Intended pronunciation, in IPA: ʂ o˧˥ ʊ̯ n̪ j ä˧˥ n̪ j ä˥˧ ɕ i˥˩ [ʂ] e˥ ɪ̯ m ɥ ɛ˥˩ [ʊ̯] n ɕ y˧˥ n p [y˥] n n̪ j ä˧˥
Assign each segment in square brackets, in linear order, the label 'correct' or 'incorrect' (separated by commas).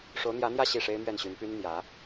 correct, incorrect, correct